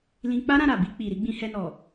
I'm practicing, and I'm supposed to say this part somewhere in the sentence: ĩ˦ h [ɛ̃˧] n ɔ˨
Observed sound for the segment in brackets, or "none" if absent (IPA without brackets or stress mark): ɛ˧